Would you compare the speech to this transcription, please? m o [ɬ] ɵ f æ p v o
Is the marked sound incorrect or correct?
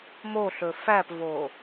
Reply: correct